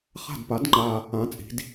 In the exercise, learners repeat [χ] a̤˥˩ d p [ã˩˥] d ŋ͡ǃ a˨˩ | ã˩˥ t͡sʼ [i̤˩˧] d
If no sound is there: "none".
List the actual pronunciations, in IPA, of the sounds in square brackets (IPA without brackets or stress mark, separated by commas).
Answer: χ, a˩˥, i̤˩˧